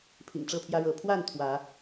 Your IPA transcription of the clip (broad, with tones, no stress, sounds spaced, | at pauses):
pʰ ḭ˨˩ ŋ ʈ͡ʂ ɤ˥˨ pʰ j ä˦ ɻ ɤ˨˦ pʰ w a˥˨ n t̪ʰ w ä˨˦